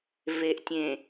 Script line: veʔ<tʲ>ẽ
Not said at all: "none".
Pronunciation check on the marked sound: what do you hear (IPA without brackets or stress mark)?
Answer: tʲ